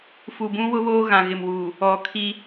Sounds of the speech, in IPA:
fu˨bũ˦wʊ˦βoː˦ ɣã˨ɣɪ˨mwuː˨ | ɔ˨kʰi˦

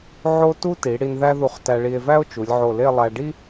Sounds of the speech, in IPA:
ʕo˥ tu˥ti˩˧ ɽi˧nðæ˥ðu˧χ tæ˧ɭi˧e̯væ˥o̯ t͡ʃu˩˧lʲʕo˧˩le˥˧lˠæ˧ ɖi˥

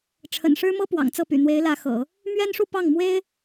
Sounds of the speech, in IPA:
ʈ͡ʂʰə̰˨˩nʂɻ̩˥mɤ˥ pwɑ̰˨˩ŋt͡sɤ˥˩py̰˨˩ n̪we˧˥ɪ̯lä˧˥xɤ̰˨˩˦ | mɥɛ˥nʂu˥˧ pɑ˥˩ŋ mwe˥ɪ̯

